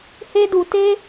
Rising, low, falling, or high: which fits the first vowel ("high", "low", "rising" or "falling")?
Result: high